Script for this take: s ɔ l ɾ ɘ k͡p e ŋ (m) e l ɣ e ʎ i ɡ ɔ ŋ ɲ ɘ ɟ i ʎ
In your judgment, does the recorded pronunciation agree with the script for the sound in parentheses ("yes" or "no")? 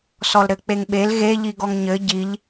no